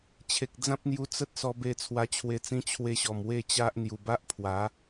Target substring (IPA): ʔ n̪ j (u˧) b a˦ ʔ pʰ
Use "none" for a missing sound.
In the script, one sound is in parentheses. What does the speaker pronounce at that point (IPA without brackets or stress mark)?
u˨˩